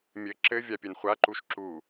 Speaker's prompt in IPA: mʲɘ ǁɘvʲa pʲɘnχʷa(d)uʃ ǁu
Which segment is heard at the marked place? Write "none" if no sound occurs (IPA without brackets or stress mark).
ǃ